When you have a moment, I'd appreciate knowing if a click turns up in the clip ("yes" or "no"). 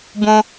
no